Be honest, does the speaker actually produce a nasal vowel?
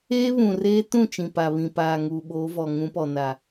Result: yes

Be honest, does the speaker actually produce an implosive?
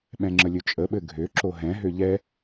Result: yes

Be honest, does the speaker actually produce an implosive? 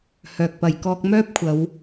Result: no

